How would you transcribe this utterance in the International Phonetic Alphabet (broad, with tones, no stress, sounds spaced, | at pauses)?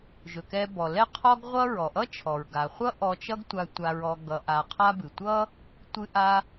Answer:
ʒ ɵ˩ k ɛ˧ b ɔ˩ l ɛ˥ qʰ ɔ˥ ɡ ʁʷ ʌ˥ ɹ ɔ˩ ʔ ʌ˥ t͡ʃʰ ɔ˩ ɹ ɡ a˩ χʷ ʌ˥ ʔ ɔ˧ t͡ʃ ʌ˥ ɡ tʷ a˧ tʷ a˧ ɹ ɔ˧ ɡ ʌ˧ ʔ a˧ qʰ a˥ b ɨ˩ tʷ ʌ˥ | tʷ ɨ˧ ʔ a˧